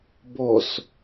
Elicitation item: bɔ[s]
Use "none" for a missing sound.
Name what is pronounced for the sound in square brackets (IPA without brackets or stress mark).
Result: s